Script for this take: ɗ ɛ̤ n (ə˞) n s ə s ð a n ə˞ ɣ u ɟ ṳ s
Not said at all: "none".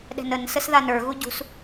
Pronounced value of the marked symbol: ə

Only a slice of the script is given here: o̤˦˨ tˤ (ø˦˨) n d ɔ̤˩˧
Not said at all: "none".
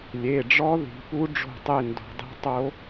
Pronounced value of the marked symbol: e˦˨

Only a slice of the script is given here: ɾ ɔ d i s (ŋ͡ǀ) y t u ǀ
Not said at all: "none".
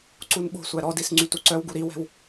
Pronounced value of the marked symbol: ŋ͡ǀ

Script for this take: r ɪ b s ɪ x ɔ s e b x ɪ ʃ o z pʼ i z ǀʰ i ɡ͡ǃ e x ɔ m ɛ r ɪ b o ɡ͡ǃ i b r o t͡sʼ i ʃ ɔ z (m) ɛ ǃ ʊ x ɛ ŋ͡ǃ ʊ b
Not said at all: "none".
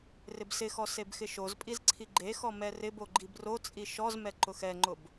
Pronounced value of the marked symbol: m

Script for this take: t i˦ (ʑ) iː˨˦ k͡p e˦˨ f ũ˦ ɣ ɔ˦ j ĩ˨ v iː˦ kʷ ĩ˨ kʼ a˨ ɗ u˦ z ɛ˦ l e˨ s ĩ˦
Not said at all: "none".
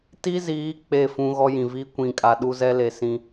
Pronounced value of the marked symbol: z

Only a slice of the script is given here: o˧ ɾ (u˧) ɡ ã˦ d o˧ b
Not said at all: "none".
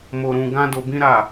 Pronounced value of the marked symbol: ũ˧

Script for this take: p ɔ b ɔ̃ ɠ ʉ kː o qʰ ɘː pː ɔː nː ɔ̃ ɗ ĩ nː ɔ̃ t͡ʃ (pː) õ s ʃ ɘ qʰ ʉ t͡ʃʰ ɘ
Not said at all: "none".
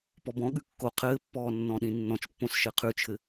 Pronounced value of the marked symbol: pː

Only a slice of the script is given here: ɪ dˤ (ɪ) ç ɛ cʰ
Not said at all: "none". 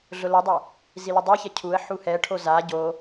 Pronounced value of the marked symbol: ɛ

